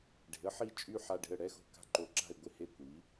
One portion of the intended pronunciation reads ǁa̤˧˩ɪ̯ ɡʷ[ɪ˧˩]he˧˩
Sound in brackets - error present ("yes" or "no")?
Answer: no